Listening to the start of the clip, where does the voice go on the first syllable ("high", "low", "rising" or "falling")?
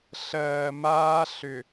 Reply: low